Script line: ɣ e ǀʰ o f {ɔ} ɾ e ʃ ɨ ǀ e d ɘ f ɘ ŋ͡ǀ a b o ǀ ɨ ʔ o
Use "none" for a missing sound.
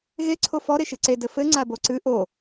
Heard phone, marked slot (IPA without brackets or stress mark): ɔ